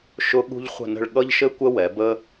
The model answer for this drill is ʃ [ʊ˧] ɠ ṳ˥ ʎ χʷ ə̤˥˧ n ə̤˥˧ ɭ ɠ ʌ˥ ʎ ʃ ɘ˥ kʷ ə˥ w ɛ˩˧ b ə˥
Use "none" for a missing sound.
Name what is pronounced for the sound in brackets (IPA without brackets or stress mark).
ʊ˧